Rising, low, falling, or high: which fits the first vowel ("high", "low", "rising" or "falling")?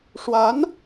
rising